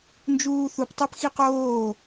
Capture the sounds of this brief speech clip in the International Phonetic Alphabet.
n d͡ʒ uː θ u p tˤ ɛ p x i q oː

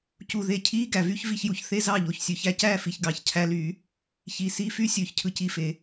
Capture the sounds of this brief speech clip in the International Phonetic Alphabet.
c u˨˩ ð e˨˩ cʰ iː˧˥˧ ɡ æ˨˩ v y˧˥˧ ç v i˥˩ ç j u˨˩ ç θ e˥˧ z ɑ˥˩ ʎ o˨˩ ç sʲ ø˨˩˦ ç æ˧˥˧ c æː˥˧ f i˨˩ ç ɡ ɑ˨˩˦ ç cʰ æ˧˥˧ l yː˨˩˦ | ç i˨˩ s i˧˥˧ f y˥ sʲ øː˥ ç cʰ ɯ˥ c i˧˥˧ f e˨˩˦

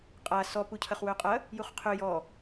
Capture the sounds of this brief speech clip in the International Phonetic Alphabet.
qʼ a s ɔ p u cʰ ɐ χ w ø qʼ ɐ | j u χ qʰ ø j ɔ

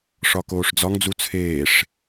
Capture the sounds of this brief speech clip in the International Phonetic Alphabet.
ʂ ɒ k oː ʂ d͡z ɒ ŋ d͡z u t͡sʰ eː ʂ

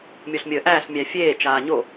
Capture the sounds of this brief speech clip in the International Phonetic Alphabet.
mʲ o ɬ mʲ əː ʔ æː ɬ mʲ æ fʲ eː t͡ʃ aː ɲ o

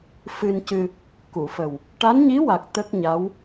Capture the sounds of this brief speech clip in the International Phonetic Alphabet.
f ɨ˧ n c ɨ˧ | k u˨˩˨ f ə˨˩ w | ʈ a˧˥ n ɲ i˧˥ w a˨˩ k̚ t̪ ə˦˥ k̚ ɲ a˧˥ w

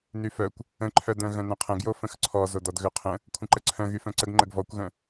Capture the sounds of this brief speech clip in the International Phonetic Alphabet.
n y f œ kʷ | ə̃ ǃʰ œ d œ̃ ɣ œ̃ n œ̃ qʰ ə̃ ɡ j o f ə̃ x ǀʰ ɔ z o d ɔ d ɣ ø qʰ ə̃ | kʷʰ ə̃ ǃ ə ǀʰ œ̃ ɣ y f œ̃ ǀ ə ɡ ŋ͡ǃ ə ɡ v ɔ kʷ ɣ œ̃

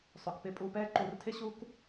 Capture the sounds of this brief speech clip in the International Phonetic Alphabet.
sˤ ɵ˩ k p ɪ˦˨ pʼ u˦˨ p ɛː˥ ǃ u˧˩˧ r tʰ ɪ˥ ɕ u˥ k

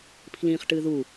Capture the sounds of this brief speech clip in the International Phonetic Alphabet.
pʰ l ĩː χ ʈ ɨː ð u

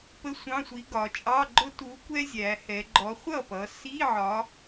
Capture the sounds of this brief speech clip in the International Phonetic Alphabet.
p ə˧˥˧ sʷ ɑ̃˧˥˧ sʷ i˨˥ ɡ ɒ˩˧ t͡ʃʼ ɑ˧˥˧ ɡ͡ǃ ʊ˥ t u˨˥ kʷ ɛ˥ zʲ æ˩˧ h ɛ˩˧ ɡ͡ǃ ɔ˨˥ χʷ ʌ˥˩ p ʌ˩˧ s i˧˥˧ ʕ ɒ˨˥

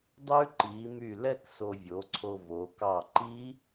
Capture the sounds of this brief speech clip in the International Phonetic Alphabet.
dˤ ʉ˦˥ ǃ i˩˧ m y˧˩ l ɛ˥˧ k s o˧ vʲ o˩˥ ǀʰ o˧ v o˩˧ k ɑ˧˩ ǃ i˦˥

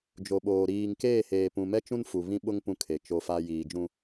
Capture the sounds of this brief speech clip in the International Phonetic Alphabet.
d͡ʒ o˨ ɓ oː˨ ɾ iː˨ ŋ k eː˦˨ h eː˨ p ũ˨ m ɛ˦ t͡ʃ ũ˦ n f u˨ β ĩ˦ ɓ ʊ˦ ŋ p ũ˨ kʰ e˨ t͡ʃ o˦ f a˦ j iː˨ d͡ʒ ũ˦

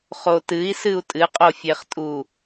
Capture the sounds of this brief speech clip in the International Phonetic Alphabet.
χ o t ɨ i̯ s ɨ u̯ tʼ ɨ qʼ o fʲ e χ tʼ u

